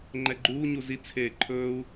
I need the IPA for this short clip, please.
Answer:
ŋ͡ǃ ɛ ɡ͡ǃ uː ɲ u z i t͡sʰ eː ǃʰ ɵː u̯

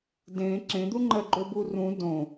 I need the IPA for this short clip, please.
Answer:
d ẽ ǁ ẽ d̪ u ŋ͡ǃ ɜ ɡ͡ǃ o b u r ũ d õ

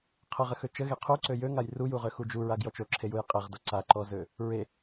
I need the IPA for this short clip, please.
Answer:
qʰ ə ʁ ə x ø t͡ʃ ə ɣ e qʰ u ǀ ø j ø ŋ a j r u j u ʁ ø x u d͡ʒ u ɹ a ɡ j ɔ t͡ʃ o ǁʰ e j u j qʼ e ʁ d ɔ ǀ a ǃ ɔ z ø | ɹ e

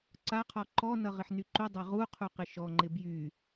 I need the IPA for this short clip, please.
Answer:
ǀ a qʰ ɔ ǃ ɔ n ʌ ʁ ɪ ħ n y ǃ y dˤ e ʁ u qʰ u q ɪ ʃ ɔ ŋ͡ǃ ɪ b j y

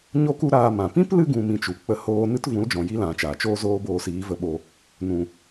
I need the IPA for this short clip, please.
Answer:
ɲ o˦ k u˦ ɾ aː˧ m ã˨ p ĩ˦ p l ɨ˧ ɡ ũ˨ m ĩ˧ t͡ʃ u˨ k͡p ə˦˨ h oː˧ n ɨ˦ t v ũ˨˦ l d͡ʒ ɔ̃˨ j i˦ l ã˨˦ t͡ʃ aː˨ t͡ʃ oː˦ z oː˦ b oː˧ s iː˨˦ v ə˧ ɓ o˧ | n ũ˨

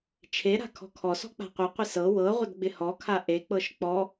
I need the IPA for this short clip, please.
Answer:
t͡ʃʰ e ɾ a̤ kʰ ɔ̤ kʰ ɔ s ɔ̤ k͡p a̤ qʷ ɪ qʷ ɪ s ɤ w ɤ ʁʷ ɪ d ɡ͡b ɪ h ɔ kʰ a ʔ e k͡p ɤ ʃ k͡p ɔ

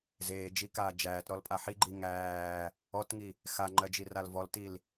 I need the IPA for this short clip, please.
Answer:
z eː d͡ʒ i k aː d͡ʒ æː t ɾ ɔ l pʼ a ħ i ɡ͡ǃ i ŋ æː | ɔ t ŋ i | x a ŋ͡ǃ ɜ d͡ʒ i r a l v ɔ l t i l

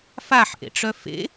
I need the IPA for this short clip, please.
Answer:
f a ħ ʔ ḛ ʈ͡ʂ œ f ḛ

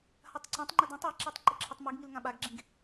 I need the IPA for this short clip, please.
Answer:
h a tˤ ǀ õ tˤ ŋ͡ǃ ə d ĩ tˤ a ǁ i tˤ ǃ ə ǁʰ ɘ tˤ m i ɡ ŋ i l ŋ ã ɓ a ɡ ɡ͡ǁ ĩ ɡ

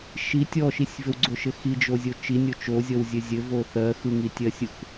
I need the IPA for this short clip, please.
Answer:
ʃ i tʲ ɔ ʃ i sʲ v ɘ w ɡ͡ǀ o ʃ ɘ x i d͡ʒ o zʲ o t͡ʃ i nʲ o t͡ʃ o zʲ ɔ w zʲ ɘ zʲ ɘ v o θ ɜ x ɯ ŋ i tʲ ɜ sʲ u x

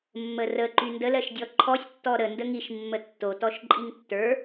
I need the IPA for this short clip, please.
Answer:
mː ə r ə ǃ y n d ə l ɜ ʃ dʲ ɔ ǃʰ ɔ sʲ tː ɔ ɾ ə n d ə ŋ i ʃ mː ə tː o t ɔ ʃ ǃʼ i ŋ tː ə˞

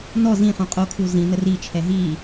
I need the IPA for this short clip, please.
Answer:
n ɔ z ĩ χ ũ qʼ o kʰ u z ĩ n ə r i t͡ʃʰ ɛ ɦ i

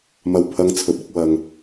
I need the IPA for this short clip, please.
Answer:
m ɐ˨ w pʰ ɐ˧ ŋ t͡sʰ ɵ˨ t̚ ɪ˧ k̚ w ɐ˨ ŋ

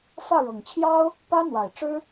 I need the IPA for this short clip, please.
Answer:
f ä˥˩ ɻ ɤ˨˩ ŋ t͡ɕʰ j ɑ˥ ʊ̯ | p ä˥ n̪ w a˨˩ ɪ̯ ʈ͡ʂ ɻ̩˥

